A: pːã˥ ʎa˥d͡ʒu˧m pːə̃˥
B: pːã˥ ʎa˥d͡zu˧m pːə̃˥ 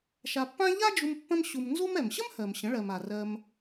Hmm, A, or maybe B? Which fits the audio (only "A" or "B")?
A